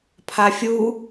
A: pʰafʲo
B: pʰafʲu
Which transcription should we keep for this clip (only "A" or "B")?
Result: B